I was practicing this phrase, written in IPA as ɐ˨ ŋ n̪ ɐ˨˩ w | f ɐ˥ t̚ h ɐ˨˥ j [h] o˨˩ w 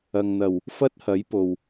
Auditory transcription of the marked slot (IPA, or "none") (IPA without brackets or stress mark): p